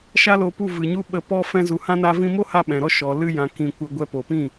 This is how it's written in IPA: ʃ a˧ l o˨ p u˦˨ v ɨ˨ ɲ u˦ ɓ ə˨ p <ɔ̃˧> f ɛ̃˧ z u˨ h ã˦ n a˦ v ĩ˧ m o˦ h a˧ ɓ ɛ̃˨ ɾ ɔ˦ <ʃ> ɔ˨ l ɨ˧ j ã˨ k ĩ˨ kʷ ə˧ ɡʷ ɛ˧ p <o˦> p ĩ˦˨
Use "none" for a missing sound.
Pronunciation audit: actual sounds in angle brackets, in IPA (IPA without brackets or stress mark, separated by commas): ɔ˧, ʃ, o˨